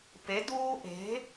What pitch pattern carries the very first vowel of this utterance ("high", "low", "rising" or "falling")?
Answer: rising